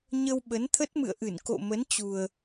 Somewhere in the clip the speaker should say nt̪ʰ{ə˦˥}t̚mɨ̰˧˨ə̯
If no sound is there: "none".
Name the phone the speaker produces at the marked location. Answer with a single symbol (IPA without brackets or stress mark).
ə˦˥